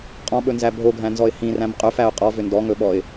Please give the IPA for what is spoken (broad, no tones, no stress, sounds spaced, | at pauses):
qʼ ɔ̃ ɓ ɵ n z æ bʱ o ɡʱ æ̃ n z ɔ ɪ̯ h ĩ r æ̃ m qʼ ɵ f æ ʊ̯ qʼ ɔ v ʏ n d ɔ ŋ ɵ ɓ ɔ ɪ̯